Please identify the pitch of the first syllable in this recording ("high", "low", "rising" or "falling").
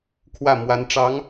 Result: falling